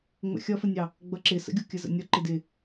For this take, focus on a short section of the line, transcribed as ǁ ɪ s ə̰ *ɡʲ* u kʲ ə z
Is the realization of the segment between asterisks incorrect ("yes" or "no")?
no